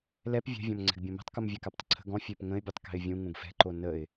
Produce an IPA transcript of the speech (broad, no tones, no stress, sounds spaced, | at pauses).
l ɛ p vʲ ɛ̤ vʲ ɔ̃ m ŋ͡ǀ ɛ̤ ɡ bʲ õ m ɛ̤ tˤ k u m vʲ ɛ k a p tˤ ə̤ ǀʰ ə̤ ɡ ɔ̃ fʲ ø p ŋ ə̃ ɪ̯ bʲ u tˤ k ɛ̤ ɪ̯ vʲ ũ ŋ ũ ɡ f ɛ̤ ǃ o n ə ɪ̯